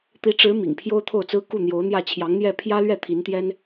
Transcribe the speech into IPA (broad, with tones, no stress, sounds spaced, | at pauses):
t̪ i˧˥ ʈ͡ʂ ɻ̩˧˥ m ḭ˨˩ ŋ pʰ j o˥ ʊ̯ t̪ʰ o˥˩ ʊ̯ t͡s ɹ̩˥ k u˥˩ n̪ j o˧˥ ʊ̯ n̪ j ä˥˩ t͡ɕʰ j ɑ˧˥ ŋ n̪ j ɛ˥˩ pʰ j ä˥ l ɥ ɛ˥˩ t̪ʰ i˧˥ n t̪ j ɛ˥ n